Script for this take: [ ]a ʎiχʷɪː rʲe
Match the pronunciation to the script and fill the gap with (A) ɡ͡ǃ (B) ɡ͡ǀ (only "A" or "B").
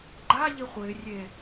A